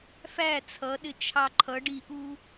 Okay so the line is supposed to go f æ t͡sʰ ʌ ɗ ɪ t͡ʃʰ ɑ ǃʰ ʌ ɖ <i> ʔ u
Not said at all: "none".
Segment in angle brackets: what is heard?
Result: i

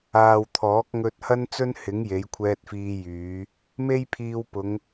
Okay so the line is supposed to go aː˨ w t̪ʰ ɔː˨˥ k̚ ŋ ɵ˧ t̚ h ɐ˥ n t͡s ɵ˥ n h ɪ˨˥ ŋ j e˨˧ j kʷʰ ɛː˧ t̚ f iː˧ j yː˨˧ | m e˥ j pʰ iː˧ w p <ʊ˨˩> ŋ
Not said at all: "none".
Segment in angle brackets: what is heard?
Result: ʊ˨˧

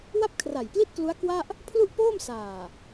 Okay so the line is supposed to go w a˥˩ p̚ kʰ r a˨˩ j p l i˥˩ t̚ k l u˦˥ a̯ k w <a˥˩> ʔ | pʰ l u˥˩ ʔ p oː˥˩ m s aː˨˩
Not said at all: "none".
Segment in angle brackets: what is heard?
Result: a˥˩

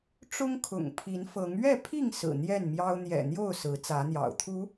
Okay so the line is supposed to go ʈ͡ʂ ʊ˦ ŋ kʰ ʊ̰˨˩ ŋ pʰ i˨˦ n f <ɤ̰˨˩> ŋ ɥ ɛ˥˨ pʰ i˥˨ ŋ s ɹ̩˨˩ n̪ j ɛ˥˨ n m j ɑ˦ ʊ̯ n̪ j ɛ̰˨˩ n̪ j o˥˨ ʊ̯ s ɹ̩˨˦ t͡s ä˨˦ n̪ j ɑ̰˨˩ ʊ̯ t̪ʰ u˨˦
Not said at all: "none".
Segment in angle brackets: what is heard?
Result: ɤ˨˦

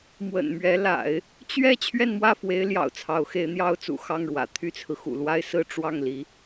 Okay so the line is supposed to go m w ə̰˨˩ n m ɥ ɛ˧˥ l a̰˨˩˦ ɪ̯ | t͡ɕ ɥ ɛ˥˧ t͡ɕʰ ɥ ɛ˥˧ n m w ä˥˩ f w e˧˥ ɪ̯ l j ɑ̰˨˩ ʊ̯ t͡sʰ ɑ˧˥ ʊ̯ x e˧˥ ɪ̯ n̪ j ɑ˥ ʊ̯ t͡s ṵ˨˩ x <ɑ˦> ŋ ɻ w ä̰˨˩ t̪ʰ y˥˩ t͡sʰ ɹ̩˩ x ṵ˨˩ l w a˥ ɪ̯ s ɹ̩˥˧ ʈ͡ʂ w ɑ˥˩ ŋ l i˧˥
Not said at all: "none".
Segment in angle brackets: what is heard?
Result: ɑ˥˩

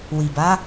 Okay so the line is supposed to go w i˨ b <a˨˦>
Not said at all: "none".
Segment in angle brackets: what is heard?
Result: a˨˦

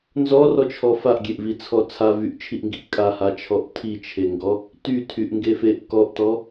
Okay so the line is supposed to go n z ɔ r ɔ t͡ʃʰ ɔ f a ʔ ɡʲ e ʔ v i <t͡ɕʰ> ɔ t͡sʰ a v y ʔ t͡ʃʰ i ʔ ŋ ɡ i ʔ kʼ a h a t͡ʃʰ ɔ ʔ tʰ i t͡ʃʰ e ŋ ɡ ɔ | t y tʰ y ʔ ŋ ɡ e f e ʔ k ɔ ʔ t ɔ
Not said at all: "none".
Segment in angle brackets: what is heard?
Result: t͡sʰ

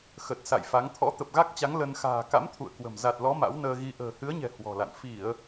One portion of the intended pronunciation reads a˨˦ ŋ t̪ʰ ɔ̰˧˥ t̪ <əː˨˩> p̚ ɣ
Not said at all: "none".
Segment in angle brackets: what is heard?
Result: ə˨˩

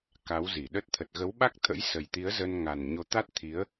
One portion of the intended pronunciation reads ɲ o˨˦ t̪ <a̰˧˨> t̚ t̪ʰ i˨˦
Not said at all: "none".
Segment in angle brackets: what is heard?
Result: a˦˥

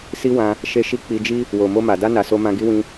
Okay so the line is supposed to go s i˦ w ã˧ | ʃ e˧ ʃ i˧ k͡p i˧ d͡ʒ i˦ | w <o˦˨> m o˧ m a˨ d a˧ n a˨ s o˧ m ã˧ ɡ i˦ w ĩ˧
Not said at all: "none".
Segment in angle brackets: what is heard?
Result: o˨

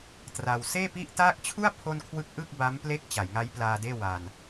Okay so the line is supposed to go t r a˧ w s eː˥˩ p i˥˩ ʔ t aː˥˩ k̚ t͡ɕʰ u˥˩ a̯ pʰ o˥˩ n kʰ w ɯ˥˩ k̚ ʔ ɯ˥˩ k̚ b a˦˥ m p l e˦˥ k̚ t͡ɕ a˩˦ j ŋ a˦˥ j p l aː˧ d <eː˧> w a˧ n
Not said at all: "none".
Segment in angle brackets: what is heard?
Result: eː˥˩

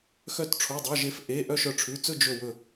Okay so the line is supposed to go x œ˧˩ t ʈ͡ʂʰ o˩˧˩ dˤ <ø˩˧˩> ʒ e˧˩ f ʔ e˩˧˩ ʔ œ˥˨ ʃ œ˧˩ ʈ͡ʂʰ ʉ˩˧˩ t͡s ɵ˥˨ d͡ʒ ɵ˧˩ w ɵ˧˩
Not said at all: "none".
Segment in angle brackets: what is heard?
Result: œ˩˧˩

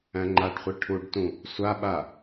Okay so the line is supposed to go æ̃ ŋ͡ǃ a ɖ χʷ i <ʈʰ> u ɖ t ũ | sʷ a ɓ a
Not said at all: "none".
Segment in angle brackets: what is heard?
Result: ʈʰ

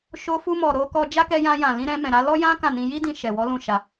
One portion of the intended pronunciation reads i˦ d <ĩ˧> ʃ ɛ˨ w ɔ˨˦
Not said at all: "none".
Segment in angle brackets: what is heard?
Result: ĩ˧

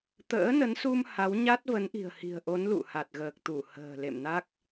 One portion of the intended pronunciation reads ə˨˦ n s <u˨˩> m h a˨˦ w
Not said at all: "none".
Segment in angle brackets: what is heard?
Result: u˧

